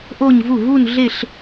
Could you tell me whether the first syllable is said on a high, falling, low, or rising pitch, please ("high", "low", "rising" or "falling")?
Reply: falling